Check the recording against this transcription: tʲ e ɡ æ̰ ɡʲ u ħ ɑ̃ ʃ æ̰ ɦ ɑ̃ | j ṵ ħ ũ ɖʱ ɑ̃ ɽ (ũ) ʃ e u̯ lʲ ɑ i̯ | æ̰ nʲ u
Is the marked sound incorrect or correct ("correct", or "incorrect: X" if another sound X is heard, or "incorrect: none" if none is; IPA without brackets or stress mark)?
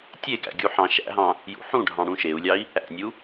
correct